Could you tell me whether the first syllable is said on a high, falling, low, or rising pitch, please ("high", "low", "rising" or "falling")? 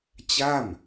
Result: falling